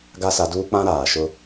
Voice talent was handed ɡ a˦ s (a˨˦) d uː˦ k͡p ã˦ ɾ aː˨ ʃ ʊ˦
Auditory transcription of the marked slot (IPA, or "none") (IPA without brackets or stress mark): a˨˦